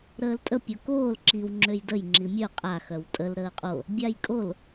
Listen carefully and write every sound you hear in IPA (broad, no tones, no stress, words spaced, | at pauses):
ɾəːltʼə pʲokoːl ǁiw ŋ͡ǁøjdəj ŋ͡ǁimʲœ qʼa xœwtʼəl ɾəːqʼo | bʲajkʼol